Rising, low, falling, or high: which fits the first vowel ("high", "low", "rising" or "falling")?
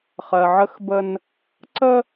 low